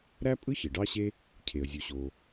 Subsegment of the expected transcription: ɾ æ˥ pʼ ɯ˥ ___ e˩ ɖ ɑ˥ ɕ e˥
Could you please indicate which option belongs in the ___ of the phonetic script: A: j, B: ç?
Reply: B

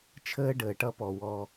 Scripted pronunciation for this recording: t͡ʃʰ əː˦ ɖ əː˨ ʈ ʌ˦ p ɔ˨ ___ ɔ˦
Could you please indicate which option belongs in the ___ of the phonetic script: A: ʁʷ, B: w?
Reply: B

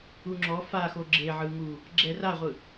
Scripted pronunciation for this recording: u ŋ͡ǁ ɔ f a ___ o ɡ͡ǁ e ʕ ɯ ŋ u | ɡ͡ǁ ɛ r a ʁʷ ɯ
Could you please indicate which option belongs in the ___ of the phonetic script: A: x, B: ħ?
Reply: A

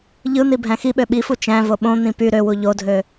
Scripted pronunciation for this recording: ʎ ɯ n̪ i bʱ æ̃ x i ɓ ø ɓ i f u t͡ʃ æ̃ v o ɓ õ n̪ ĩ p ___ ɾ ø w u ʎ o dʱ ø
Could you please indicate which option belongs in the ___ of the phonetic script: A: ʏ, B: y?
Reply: B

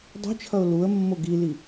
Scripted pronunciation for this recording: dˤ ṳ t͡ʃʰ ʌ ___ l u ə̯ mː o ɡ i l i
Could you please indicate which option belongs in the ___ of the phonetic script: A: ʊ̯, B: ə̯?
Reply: A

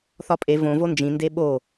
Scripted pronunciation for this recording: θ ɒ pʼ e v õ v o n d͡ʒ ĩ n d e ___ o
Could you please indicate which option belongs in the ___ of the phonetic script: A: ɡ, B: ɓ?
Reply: B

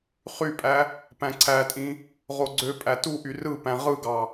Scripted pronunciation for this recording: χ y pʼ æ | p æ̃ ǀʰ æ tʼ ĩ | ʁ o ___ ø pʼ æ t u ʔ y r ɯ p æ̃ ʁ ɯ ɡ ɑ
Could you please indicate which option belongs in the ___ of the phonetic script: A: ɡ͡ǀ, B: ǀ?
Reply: A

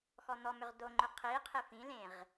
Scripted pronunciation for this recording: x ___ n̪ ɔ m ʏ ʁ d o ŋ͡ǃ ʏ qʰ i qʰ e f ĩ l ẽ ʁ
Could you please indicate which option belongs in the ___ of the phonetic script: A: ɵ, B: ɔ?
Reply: B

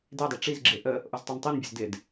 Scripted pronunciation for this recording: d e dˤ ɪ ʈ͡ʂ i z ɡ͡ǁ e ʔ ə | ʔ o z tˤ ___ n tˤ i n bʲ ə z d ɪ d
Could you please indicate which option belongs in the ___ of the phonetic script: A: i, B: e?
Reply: A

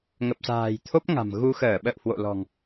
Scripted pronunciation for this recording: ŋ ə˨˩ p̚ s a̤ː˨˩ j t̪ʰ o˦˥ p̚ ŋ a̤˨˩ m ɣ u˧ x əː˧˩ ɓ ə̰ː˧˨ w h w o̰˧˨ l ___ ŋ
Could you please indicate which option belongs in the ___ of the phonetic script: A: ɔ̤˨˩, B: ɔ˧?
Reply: A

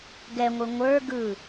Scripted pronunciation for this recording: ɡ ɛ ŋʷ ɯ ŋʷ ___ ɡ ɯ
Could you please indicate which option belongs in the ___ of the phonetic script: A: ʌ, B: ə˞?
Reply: B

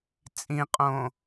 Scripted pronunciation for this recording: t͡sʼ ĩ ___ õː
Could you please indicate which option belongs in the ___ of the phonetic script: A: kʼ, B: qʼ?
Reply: B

